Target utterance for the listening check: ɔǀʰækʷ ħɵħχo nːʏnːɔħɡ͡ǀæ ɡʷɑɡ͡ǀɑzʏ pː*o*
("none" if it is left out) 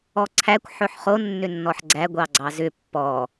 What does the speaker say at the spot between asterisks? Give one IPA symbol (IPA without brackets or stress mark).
ɔ